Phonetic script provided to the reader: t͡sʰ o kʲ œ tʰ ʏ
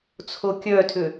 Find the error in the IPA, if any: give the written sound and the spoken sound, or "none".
none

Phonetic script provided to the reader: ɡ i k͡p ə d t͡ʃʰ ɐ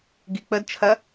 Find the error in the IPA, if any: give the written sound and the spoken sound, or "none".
none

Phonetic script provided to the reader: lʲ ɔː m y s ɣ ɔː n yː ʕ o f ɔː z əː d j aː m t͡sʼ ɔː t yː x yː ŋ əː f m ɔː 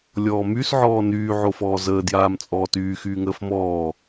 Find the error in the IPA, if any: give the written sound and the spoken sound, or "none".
ɣ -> ʕ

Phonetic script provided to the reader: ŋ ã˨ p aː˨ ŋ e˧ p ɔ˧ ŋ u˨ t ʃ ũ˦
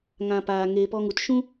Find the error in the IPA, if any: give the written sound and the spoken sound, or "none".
none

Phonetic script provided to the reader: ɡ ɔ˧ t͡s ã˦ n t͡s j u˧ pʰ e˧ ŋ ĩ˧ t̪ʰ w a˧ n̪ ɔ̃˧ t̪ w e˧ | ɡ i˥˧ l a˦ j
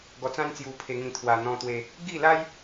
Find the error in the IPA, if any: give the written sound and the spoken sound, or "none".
none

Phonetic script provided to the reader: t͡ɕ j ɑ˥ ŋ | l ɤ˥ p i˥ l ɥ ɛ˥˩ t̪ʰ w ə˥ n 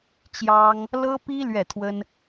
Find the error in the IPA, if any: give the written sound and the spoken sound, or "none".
none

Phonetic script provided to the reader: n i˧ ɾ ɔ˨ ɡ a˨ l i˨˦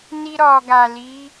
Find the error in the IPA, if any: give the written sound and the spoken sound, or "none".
none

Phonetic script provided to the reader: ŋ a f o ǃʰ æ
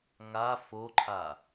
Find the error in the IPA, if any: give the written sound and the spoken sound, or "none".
æ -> a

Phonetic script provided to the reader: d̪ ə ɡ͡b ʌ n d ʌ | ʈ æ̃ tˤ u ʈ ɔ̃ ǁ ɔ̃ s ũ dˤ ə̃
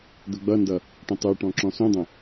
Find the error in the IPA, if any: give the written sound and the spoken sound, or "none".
æ̃ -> ə̃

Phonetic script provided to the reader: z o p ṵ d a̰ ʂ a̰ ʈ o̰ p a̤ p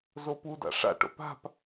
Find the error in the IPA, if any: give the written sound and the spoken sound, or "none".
ṵ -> u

